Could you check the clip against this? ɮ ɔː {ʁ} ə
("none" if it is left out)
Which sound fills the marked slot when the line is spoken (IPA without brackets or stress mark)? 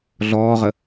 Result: ʁ